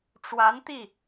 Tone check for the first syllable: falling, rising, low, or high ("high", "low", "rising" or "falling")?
rising